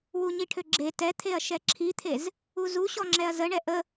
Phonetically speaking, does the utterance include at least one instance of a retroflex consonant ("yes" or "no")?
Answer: yes